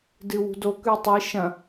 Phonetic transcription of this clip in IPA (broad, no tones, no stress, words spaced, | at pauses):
dɨwṳdo kʉtˤi ʃɐ̃